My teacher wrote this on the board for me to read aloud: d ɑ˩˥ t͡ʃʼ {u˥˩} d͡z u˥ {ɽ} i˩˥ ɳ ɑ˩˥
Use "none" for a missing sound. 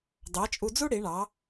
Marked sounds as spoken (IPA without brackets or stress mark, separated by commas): u˧, ɽ